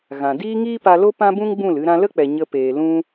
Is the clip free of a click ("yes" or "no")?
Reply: yes